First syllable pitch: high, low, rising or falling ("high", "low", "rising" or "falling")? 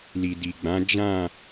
low